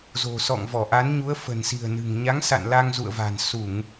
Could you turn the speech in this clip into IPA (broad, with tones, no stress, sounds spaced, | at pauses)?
z o̤˨˩ s ɔ̰˧˨ ŋ v ɔ˧˩ ʔ a˨˦ n ɲ u˨˦ ə̯ f ə̤˨˩ n s i̤˨˩ ə̯ n ɨ̤˨˩ ŋ ɲ a˨˦ ŋ s a̰˧˨ n l a˧ ŋ z ṵ˧˨ ə̯ v a̤˨˩ n s u˧˩˨ ŋ